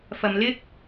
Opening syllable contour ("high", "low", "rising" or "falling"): low